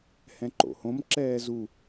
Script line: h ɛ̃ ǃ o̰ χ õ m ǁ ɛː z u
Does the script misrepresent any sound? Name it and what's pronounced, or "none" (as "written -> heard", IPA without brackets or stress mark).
χ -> h